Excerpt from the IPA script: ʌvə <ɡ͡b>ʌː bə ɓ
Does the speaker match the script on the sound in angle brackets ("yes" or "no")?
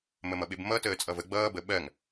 yes